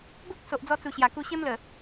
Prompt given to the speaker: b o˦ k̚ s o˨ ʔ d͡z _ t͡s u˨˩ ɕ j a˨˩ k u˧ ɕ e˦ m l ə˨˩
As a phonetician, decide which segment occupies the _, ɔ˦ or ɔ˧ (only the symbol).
ɔ˧